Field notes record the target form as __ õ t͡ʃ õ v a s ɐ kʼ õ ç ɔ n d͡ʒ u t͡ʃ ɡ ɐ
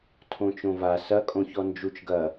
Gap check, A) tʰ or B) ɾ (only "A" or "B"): A